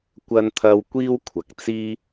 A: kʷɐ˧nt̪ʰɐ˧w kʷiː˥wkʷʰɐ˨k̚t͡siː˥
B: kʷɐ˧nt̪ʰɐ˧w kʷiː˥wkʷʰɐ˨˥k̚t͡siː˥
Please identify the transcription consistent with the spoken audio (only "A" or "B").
A